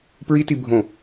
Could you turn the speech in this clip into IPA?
p ɹ i t i bʱ õ

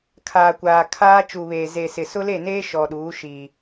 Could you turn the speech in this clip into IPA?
kʰ aː˨ kʷ aː˨ kʰ aː˦ t͡ʃ u˨ β eː˨ z e˨ s ɪ˨ s ʊ˦ l e˦˨ n eː˦ ʃ ɔ˨ ɗ uː˨˦ ʃ iː˨

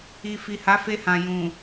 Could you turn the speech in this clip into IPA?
i˨ f i˨ h a˨˦ f e˧ h ã˨ j ũ˨

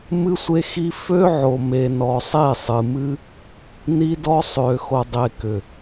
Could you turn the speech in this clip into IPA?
m ɨ˦ sʷ e˦ x i˦ f ø˦ ʕ o˨ m e˨ n ɔ˨ sˤ e˦˨ sˤ ɨ˨ m ɨ˦ | n i˦ d ɔ˦ sˤ ø˨ x o˨ dˤ e˨ k ʏ˨

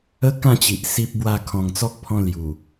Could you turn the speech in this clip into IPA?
ə˦ k ã˥˧ t͡ɕ i˨ ʔ s i˦ p̚ b w a˥˧ kʰ ɔ̃˨˩ ŋ t͡s ɔ˦ k̚ pʰ ɔ̃˧ l j u˨˩

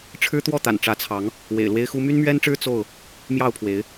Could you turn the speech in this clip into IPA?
ʈ͡ʂʰ ɻ̩˦ t̪ w ɔ˥˨ t̪ a̰˨˩ n ʈ͡ʂ ä˨˦ t͡sʰ ɑ˨˦ ŋ | w ḛ˨˩ ɪ̯ l w e˦ ɪ̯ x u˦ m y˦ n m ɥ ɛ˦ n ʈ͡ʂ ɻ̩˦ t͡s o˥˨ ʊ̯ | m j ɑ˥˨ ʊ̯ pʰ w e˨˦ ɪ̯

